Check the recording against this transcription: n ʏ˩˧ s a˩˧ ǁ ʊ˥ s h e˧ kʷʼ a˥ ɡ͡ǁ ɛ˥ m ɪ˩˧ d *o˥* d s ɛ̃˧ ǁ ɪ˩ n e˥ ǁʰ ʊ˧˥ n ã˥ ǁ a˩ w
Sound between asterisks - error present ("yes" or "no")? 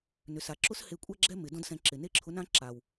yes